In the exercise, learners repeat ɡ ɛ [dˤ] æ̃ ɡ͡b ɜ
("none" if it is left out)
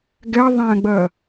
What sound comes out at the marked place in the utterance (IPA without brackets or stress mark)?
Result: ðˤ